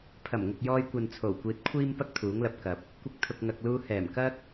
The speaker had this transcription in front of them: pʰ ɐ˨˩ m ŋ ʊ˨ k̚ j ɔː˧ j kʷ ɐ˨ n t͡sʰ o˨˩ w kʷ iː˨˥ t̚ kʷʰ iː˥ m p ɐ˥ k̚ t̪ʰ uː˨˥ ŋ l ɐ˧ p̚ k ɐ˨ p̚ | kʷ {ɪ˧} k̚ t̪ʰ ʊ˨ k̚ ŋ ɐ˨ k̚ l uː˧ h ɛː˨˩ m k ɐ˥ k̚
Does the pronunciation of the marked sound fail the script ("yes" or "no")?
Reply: no